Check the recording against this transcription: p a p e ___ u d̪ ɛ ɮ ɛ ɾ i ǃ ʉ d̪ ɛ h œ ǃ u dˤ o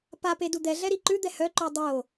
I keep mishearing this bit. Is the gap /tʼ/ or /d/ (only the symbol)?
d